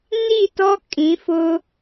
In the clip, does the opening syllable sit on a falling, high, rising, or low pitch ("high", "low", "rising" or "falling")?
falling